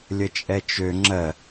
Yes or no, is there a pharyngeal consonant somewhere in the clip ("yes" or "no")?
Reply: no